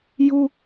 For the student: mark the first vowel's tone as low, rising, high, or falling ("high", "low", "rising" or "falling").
high